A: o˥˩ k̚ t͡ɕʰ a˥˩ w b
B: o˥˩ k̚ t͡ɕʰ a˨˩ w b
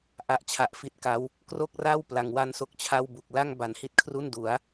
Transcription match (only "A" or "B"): A